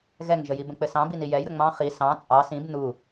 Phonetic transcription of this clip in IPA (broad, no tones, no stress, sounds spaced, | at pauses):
ɣ ɛ ŋ ʒ ə j i b ə̃ k͡p ɘ s ɑ̃ b i n i j ɛ j ɾ ə ŋ͡m ɑ̃ χ i s ɑ̃ t͡sʼ ɑ s ĩ b n u